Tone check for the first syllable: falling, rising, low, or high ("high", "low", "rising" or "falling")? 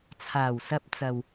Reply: low